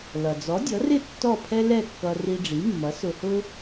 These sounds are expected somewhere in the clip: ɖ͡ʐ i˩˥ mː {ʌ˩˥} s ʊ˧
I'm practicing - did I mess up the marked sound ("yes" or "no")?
no